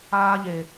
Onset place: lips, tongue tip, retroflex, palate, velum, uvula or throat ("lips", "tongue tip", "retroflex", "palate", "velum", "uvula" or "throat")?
palate